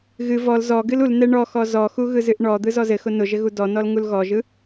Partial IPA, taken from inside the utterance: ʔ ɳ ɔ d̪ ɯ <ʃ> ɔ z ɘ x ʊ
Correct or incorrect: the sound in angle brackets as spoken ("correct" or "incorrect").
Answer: incorrect